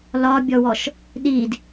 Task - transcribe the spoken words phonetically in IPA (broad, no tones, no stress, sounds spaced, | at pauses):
l ɒ bʲ ɔ w ɔ ʃ | ɗ i d